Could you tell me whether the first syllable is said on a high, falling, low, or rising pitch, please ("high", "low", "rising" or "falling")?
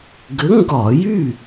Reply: rising